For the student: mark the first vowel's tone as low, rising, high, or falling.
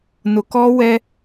low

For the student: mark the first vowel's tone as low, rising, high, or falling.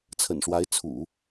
low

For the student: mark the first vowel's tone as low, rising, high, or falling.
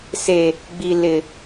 low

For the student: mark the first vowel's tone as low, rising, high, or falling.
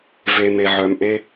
low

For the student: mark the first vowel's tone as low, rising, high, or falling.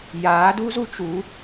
rising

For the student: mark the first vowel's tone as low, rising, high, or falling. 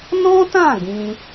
high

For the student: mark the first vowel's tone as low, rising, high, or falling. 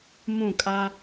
falling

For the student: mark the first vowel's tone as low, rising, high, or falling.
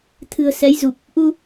low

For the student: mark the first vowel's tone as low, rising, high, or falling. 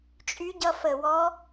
rising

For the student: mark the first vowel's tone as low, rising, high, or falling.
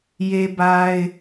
high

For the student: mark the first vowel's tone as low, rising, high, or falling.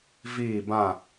falling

